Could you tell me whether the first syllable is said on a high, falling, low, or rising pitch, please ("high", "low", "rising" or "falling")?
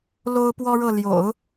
high